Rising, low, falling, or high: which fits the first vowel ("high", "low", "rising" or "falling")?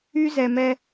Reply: high